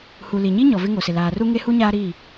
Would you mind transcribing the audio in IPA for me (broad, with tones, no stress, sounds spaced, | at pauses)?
h u˨ l i˨ ɲ i˦ ɲ ɔ˨ v ɪ˦ ŋ o˨ s ɪ˨ l aː˨ r u˦ ŋ e˦ h u˦ ɲ aː˦ ɾ i˦˨